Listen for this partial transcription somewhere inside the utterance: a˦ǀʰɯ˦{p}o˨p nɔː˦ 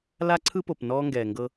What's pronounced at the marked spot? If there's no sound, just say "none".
p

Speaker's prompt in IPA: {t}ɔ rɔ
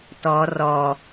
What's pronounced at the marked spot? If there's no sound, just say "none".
t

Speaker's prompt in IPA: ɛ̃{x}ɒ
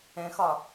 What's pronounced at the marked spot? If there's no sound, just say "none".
x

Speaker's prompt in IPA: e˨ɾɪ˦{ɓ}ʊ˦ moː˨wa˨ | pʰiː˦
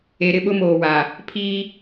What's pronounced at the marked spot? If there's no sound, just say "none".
ɓ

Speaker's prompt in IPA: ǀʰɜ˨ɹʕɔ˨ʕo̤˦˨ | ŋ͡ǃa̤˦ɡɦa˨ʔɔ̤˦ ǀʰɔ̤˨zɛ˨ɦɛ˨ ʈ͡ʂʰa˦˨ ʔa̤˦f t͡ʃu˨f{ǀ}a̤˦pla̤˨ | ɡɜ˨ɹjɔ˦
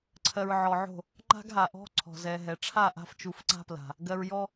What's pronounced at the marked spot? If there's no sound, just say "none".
ǀ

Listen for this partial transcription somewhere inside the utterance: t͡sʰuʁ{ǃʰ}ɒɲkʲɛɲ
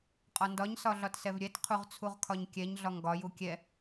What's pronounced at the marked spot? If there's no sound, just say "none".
kʰ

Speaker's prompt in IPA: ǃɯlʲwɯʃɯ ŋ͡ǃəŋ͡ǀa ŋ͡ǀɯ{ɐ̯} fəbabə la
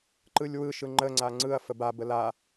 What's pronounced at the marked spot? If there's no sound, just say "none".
ɐ̯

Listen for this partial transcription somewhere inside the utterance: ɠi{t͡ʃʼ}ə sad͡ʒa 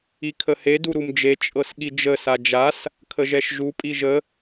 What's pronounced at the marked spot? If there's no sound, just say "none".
d͡ʒ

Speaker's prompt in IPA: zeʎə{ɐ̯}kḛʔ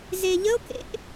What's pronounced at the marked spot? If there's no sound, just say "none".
o̯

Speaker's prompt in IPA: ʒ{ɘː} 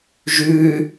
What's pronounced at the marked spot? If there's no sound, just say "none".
ʉː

